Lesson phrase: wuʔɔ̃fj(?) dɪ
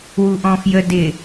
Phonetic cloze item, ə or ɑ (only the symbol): ə